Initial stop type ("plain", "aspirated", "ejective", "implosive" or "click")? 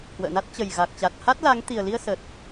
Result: plain